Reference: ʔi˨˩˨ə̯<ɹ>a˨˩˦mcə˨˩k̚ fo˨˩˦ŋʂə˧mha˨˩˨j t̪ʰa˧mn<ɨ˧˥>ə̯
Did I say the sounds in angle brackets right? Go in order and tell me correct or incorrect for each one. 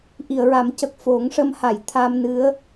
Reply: correct, correct

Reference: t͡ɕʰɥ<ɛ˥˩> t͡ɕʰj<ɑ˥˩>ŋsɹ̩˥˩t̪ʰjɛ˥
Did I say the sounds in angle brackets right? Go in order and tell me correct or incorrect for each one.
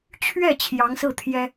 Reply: correct, incorrect: ɑ˧˥

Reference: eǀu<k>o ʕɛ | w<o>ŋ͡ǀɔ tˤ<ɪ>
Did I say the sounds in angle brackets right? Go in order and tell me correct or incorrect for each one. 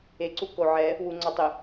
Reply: correct, incorrect: u, correct

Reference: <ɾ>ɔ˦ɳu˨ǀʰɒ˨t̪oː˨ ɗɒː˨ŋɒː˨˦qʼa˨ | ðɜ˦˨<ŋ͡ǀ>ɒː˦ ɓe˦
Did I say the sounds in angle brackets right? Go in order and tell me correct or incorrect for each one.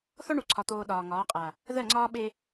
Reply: incorrect: θ, correct

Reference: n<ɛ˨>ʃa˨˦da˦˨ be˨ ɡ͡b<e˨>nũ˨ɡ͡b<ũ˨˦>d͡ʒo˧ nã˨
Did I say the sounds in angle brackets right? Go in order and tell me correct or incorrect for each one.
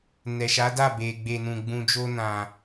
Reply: correct, correct, incorrect: ũ˨

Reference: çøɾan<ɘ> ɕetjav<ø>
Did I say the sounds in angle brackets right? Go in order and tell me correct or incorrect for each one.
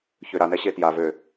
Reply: incorrect: ɛ, correct

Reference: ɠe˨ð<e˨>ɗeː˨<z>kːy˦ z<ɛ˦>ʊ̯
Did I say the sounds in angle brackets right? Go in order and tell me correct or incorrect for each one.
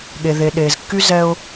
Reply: correct, correct, correct

